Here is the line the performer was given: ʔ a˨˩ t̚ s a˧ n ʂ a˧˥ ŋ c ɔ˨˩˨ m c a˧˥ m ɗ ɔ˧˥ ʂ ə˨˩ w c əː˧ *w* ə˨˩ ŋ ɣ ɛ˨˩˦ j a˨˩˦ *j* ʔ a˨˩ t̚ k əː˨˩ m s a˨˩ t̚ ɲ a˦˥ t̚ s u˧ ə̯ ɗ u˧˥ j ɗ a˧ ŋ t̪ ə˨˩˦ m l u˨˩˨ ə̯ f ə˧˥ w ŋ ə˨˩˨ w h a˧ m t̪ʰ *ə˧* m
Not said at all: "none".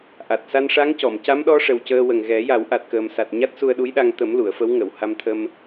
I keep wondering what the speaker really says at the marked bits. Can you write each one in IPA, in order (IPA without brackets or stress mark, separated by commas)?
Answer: w, w, ə˧